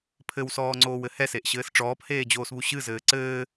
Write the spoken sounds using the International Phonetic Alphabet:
pʰ ɘ w s ɔː ŋ͡ǀ oː w ɘ h ɛ s e ʔ ɕ ɘː s ʈ͡ʂ ɔː p h eː d͡ʑ oː s β u ɕ ɨ z ɘː ǀ ɘː

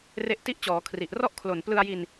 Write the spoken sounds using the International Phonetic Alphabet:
r e˦˥ ʔ t i˥˩ ʔ t͡ɕ ɔː˩˦ kʰ r i˨˩ ʔ r ɔ˥˩ ʔ kʰ l o˨˩ n p l ɯ˧ a̯ j i˧ n

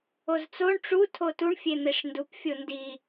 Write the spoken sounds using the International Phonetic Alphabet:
o z t͡s o ɳ ʈ͡ʂ u tʰ o t u ɳ fʲ e n̪ e ʂ n d u p fʲ o n d i

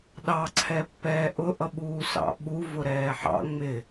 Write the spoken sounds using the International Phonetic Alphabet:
ɗ ɑ ǀʰ ɛ pː ɛː ʔ ʊ ʔ ʌ ɓ uː s ɑ̰ ɓ u v ʊ ɾ ɛː ħ ɑ̰ ŋ͡m ɪ

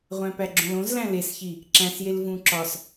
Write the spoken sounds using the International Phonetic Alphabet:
ʁʷ æ̃ p æ ɡ͡ǁ õ l õ z l æ̃ l e s ç i | ǁ æ̃ s j e l v ũ ǁ ɒ s

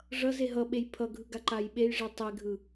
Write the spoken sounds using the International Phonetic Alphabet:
ʐ ʌ z e ɦ ʌ ɓ e j pʰ ʌ ɡʱ ɯ ɡ a ǃ a j ɓ e j ʐ i tˤ e ɡʱ ɯ

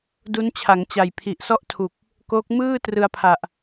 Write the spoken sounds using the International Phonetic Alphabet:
d u˦˥ n t͡ɕʰ a˩˦ ŋ t͡ɕ a˨˩ j pʰ i˨˩ ʔ s ɔ˥˩ ʔ tʰ u˨˩ k̚ | k oː˦˥ k̚ m ɯː˥˩ t r ɯ˧ a̯ pʰ a˨˩ ʔ

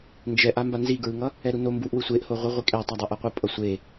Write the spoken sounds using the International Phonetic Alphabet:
n d͡ʒ ɛ ʔ a m b a n z i ɡ ɹ ɯ ŋ ʌ | ɛ ɾ u n o m b u ʔ w ɯ sʷ e ʔ h o ʁʷ ɯ ʁʷ i kʼ ɛ tˤ a dˤ e ʔ ʌ qʷ ɯ pʼ ʌ sʷ e

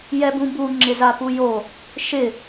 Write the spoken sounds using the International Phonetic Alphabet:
j ɛ b ũ b u ŋ͡ǁ ɪ z a p u j o | ʃ ɪ

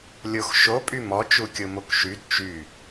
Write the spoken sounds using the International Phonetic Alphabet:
lʲ o x ʃ o pʼ y m ɔ t͡ʃ u kʲ o m o k ʃ y d t͡ʃ y

